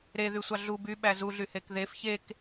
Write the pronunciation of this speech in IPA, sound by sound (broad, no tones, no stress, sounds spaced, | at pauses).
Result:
ɾ e ð y sʷ ɑ ɮ u b y ɓ æ z u ɮ y h e k ð e f ç e k